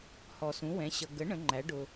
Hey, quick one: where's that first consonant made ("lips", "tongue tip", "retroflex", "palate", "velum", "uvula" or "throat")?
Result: throat